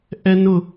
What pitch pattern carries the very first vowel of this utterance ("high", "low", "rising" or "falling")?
high